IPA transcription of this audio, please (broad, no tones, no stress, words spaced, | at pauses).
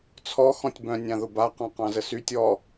t͡sʰɔ xɔ̃tʲbœ̃ nʲãðʊba qɑ̃qɑ̃zəsytʲ ɔ